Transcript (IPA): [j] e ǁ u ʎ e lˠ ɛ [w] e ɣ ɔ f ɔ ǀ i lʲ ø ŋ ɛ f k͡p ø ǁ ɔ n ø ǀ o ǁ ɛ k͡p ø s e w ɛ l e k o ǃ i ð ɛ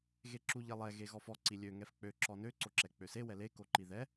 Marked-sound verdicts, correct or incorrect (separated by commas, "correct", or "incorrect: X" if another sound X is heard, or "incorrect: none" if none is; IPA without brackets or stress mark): incorrect: ɣ, incorrect: ɣ